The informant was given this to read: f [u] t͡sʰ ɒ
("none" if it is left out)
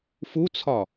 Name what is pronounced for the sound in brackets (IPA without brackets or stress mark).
u